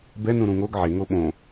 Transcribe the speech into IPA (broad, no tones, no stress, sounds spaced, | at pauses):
b ɛ n ũ ɾ ũ ŋ o ɡ ʕ e ŋ o ɓ õ